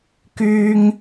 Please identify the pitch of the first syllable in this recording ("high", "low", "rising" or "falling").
high